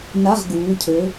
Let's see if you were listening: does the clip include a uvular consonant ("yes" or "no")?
yes